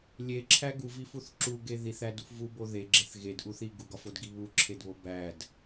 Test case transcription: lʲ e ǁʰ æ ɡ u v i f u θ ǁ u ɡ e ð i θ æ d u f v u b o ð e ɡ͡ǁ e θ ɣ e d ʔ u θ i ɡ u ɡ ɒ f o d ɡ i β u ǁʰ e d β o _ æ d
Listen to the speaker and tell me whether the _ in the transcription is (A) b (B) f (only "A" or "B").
A